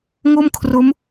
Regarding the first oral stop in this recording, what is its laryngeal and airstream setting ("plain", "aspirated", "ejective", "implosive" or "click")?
aspirated